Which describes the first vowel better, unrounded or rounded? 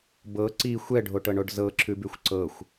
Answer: unrounded